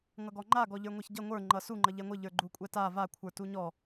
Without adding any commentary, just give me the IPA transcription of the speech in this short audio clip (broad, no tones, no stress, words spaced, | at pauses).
ŋʌɡɔŋ͡ǃa ɡɔʎə˞ŋʷaçɟʌ ŋʷə˞ ŋ͡ǃʌsu ŋ͡ǃʌʎɛŋʷɘ ʎə˞ɡ͡ǃukʷʼɛta va kʷʰə˞tuɲɔ